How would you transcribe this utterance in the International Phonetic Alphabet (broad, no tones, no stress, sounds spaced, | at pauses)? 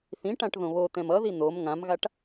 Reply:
θ ĩ ʈ ã ʈ ð õ β o t̪ ɛ̃ m ʌ ð i n̪ o m ŋ ã m ɣ a ʈ